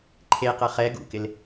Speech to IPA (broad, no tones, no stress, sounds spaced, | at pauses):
ǃʰ e q ɐ χ ɛ ɡ ṵ k ɪ l